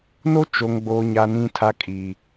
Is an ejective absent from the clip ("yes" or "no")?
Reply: no